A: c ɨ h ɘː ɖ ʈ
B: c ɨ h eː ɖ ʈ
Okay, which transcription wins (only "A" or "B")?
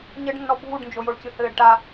A